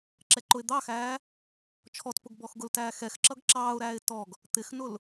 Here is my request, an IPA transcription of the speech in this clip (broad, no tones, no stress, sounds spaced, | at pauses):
ǁ ɛ ǃ ʊ ɪ̯ d̪ ɑ x æː | t͡ʃʰ ɔ t p ʊ ɡ b ɔ x ɡ ʊ l t æː x ɛ x ǁ ʌ ɡ ǁ ɑː ʊ̯ ɾ æː ɪ̯ t ɔ ɡ | t̪ ɪ x n ʊ l